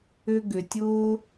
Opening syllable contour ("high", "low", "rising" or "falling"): high